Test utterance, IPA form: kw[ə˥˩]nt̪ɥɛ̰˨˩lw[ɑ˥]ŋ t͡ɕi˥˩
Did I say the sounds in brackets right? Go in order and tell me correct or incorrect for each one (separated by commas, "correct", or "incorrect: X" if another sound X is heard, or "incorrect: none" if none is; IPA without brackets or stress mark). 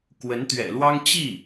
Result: incorrect: ə˧˥, correct